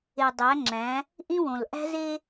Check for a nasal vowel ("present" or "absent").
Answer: present